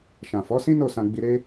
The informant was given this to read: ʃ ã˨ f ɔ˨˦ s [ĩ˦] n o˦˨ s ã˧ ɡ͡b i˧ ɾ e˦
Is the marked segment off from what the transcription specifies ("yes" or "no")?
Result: no